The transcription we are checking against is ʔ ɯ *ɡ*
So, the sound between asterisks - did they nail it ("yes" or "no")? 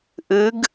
yes